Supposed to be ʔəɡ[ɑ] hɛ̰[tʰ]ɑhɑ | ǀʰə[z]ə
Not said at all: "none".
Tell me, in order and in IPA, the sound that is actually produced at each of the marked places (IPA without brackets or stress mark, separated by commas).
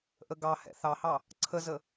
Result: ɑ, θ, z